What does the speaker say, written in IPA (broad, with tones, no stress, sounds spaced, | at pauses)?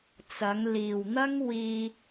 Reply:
t͡s ɐ˨˧ ŋ l iː˨ w n̪ ɐ˥ ŋ w iː˧